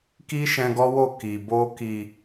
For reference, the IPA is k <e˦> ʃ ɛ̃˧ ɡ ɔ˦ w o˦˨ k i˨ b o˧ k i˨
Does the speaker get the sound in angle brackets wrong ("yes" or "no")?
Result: yes